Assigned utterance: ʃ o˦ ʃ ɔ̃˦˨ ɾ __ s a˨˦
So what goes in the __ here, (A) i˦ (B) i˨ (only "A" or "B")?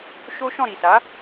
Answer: B